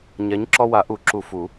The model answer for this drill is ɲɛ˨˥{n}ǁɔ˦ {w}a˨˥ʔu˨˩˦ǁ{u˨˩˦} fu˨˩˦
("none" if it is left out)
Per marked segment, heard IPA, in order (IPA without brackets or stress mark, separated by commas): ɲ, w, u˨˩˦